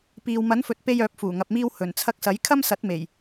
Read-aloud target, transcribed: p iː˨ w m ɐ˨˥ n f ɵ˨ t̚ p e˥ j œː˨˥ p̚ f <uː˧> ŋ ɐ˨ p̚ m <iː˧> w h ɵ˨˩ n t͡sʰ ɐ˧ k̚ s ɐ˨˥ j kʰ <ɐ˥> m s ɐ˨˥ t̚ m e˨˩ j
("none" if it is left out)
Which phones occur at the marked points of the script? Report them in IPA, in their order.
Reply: uː˨˩, iː˧, ɐ˥

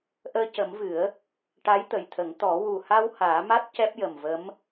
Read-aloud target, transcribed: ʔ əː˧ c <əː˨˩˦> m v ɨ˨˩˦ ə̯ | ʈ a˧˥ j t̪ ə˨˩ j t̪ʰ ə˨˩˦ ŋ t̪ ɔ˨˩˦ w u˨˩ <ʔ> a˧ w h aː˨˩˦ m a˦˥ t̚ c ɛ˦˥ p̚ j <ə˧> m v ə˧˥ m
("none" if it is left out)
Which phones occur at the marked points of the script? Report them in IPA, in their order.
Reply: ə˨˩˦, h, ə˨˩

